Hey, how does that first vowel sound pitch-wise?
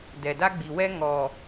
low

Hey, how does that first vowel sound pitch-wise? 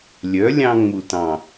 rising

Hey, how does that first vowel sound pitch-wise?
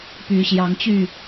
rising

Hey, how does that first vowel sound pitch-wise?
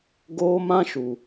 high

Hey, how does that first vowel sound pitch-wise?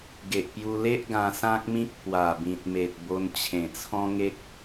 low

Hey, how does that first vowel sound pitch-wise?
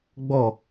falling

